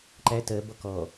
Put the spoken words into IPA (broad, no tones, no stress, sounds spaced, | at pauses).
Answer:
ǃ æ t ɜ b ɔ k ɔ